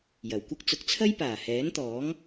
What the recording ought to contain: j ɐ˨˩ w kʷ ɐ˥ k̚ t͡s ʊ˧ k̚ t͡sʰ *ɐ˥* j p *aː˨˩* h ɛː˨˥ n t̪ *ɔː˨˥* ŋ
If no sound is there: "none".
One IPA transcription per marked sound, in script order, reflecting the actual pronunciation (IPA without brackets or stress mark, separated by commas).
ɐ˥, aː˨˩, ɔː˨˥